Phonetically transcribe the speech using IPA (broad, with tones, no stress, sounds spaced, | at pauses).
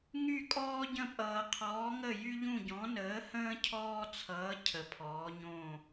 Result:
ŋ y˦˨ kʼ ɔː˦ ɟ ə̃˦˨ pʼ ʌː˨ qʰ ɔː˨˦ ŋ ə˦˨ j y˦ ʎ ũ˦˨ ɟ ɔ̃˨˦ n əː˨˦ h ə̃ː˦ cʰ ɔː˦ t͡sʰ ʌː˨˦ cʰ ə˨˦ pʰ ɔː˨˦ ɲ õ˦˨